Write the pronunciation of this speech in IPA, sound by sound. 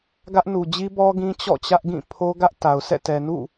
ɡ ä˦ ʔ n u˨ d͡ʑ i˦ b ɔ˦ ɡ ĩ˦ t͡ɕ ɔ̰˦˨ t͡ɕ ä˦ ʔ ɡ ĩ˦˨ pʰ o˦ ɡ ä˦ ʔ t a˨ ʊ̯ sʰ ɛ̰˦˨ t ɛ˨ n ṵ˦˨

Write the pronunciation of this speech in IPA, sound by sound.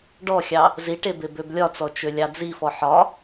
ɖ ɔ xʲ ɑ | z i ʈ e b e b ø b lʲ ɒ t͡s ɔ t͡ʃ ø lʲ ɑ d͡z i f ɔ ħ ɒ

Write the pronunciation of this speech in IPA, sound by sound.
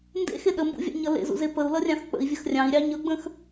n d ḛ x e ɗ ə m b ṵ vʲ ɑ̰ ɲ ʌ l ḛ z ṵ z e p ə u̯ l ʌ rʲ ɑ̃ x k͡p ə̰ i̯ vʲ ə x rʲ ɑ̃ i̯ ɾʲ ɑ ɲ ʌ ɡ͡b ə̃ x

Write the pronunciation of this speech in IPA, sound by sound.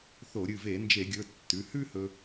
θ o˧˩˧ ɾʲ ɨ˩˧˩ v e˧˩˧ n d͡ʒ e˧˩˧ ɡʲ ɵ˩˧˩ tː ʉ˩˧˩ h ʉ˥ h ɵ˧

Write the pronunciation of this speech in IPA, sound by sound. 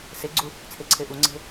s e ɡ͡ǀ u | t͡sʰ e ǀʰ e ʔ u ŋ͡ǀ e̤

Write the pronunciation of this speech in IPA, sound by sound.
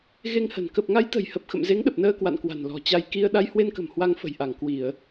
ɣ e˧ ŋ h ə̤˨˩ n k ə˨˩ p̚ ŋ a˨˦ j t̪ ə̤˨˩ j h ə˨˩ p̚ x ə̰˧˨ m z e˨˦ ŋ ɗ ə˨˩ p̚ n əː˧ k w a̰˧˨ n k w a̤˨˩ n l ɔ̤˨˩ t͡ɕ a˧ j k i˧ ə̯ ɗ a˧ j h w e˧ n k ə̤˨˩ m h w a˧ ŋ f ə̤˨˩ j ʔ a˧˩ ŋ k w i˧˩˨ ə̯

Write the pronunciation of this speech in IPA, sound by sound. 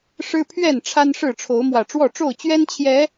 ʂ ɻ̩˦ pʰ ɥ ɛ˥˨ n ʈ͡ʂʰ a˦ n ʂ ɻ̩˥˨ ʈ͡ʂʰ o˨˦ ʊ̯ m w ä˨˩ ʈ͡ʂ w ɔ˥˨ ʈ͡ʂ o˥˨ ʊ̯ t͡ɕ ɥ ɛ˦ n t͡ɕʰ j ɛ˨˦

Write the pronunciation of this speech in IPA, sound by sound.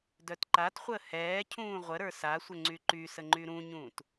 d œ t ǃ a t χʷ əː h ɛː cʰ ũː ʁʷ ə ɾ ə˞ s a sʷ ə ŋ͡ǀ y ǃ y s ə ŋ͡ǃ y ɾ ũ ɲ ũː t

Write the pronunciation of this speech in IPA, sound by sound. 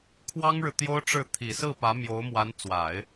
kʰ w ɑ˥ ŋ ɻ ɻ̩˨ t̪ j o˥ ʊ̯ ʈ͡ʂ ɻ̩˥˩ t̪ʰ i˨˩ s ɹ̩˥˩ p ä˧˥ m j o˧˥ ʊ̯ m w a˧˥ n t͡s w a˨˩˦ ɪ̯

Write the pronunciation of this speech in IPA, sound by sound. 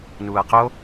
n uː ɐ̯ q o

